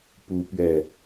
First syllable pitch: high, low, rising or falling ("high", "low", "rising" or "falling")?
high